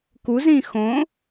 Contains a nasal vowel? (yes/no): yes